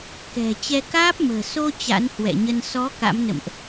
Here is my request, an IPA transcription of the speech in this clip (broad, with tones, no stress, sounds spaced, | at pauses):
k ɛ̤˨˩ t͡ɕ ɛ˧ k aː˦˥ p̚ m ə̤ː˨˩ s o˧ t͡ɕ a̰˧˥ n h w ɛ̰˧˨ ɲ ə˧ n s ɔ˨˦ k a̰˧˥ m n ə̰˧˨ m ʔ